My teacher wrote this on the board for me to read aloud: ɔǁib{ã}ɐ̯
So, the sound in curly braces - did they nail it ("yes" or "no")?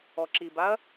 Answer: no